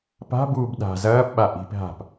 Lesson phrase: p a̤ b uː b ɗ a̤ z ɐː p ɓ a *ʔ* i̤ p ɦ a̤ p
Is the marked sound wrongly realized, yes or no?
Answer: no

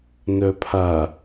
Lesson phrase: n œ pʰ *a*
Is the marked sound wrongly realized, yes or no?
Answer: no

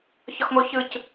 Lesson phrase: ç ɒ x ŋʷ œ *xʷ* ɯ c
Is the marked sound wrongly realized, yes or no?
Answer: yes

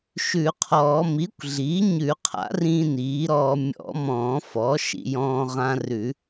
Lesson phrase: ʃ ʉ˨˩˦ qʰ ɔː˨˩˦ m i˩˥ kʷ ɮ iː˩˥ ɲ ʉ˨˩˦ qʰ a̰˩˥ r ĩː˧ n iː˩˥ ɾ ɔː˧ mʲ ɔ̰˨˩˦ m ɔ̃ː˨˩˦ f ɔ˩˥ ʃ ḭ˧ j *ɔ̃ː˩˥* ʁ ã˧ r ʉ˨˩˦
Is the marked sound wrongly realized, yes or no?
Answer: yes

